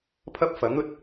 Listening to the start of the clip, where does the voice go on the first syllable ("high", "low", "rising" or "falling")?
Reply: high